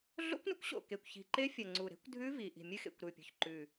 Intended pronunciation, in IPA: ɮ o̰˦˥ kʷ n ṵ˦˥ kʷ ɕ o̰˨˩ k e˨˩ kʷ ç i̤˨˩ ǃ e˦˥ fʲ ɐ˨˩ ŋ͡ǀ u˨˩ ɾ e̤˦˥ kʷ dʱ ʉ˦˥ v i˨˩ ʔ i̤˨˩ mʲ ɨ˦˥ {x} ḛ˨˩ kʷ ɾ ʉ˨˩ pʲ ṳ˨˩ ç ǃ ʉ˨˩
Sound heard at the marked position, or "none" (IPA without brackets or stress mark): x